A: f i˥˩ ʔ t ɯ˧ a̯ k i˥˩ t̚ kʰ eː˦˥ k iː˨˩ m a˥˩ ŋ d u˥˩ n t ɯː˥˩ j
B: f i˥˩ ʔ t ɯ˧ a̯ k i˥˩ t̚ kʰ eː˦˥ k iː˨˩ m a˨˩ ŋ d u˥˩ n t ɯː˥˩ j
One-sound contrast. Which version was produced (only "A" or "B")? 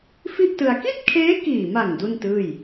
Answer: B